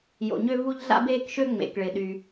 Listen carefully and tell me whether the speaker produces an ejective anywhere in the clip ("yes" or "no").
no